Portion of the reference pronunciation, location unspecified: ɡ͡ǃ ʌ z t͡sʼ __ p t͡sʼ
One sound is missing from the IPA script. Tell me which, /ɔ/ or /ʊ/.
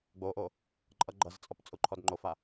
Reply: ɔ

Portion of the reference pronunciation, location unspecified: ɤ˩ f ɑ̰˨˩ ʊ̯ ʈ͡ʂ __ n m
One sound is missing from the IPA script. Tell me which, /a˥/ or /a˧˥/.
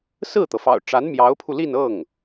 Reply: a˧˥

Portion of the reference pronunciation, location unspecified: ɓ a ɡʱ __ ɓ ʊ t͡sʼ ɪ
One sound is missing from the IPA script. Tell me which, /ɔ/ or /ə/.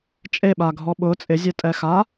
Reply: ɔ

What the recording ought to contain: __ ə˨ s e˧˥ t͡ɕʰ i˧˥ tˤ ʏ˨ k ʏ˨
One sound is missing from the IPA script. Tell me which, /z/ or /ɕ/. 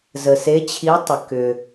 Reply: z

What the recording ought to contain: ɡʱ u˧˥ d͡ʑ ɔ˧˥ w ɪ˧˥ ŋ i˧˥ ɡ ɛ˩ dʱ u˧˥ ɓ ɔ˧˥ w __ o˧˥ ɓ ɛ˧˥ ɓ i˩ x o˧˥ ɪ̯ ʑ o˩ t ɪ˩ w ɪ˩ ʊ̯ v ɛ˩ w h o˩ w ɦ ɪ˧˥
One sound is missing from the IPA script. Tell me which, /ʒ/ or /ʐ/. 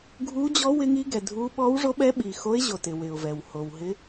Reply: ʐ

